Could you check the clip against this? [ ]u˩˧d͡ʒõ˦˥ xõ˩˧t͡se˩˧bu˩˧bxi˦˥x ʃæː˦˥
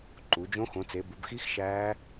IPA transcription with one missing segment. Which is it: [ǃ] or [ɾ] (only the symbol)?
ǃ